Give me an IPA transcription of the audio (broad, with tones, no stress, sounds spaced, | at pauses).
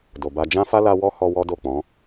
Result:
d o˨ b a˧ d͡ʒ ã˦ f a˦ l a˧ w ɔ˦ h ɔ˧ w ɔ˦ d o˦˨ k͡p ɔ̃˨˦